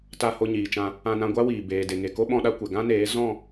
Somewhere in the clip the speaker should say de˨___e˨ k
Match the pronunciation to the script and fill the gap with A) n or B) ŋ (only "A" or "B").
B